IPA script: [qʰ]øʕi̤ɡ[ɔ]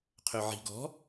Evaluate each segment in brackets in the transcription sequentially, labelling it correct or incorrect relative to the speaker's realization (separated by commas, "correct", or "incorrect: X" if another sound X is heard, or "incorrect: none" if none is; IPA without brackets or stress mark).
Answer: correct, incorrect: ɔ̤